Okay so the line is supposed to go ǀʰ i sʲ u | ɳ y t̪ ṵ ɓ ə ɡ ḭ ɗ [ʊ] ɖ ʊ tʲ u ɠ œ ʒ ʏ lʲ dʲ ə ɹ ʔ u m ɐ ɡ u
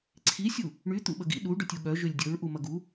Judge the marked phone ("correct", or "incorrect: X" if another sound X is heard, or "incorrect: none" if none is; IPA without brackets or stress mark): incorrect: u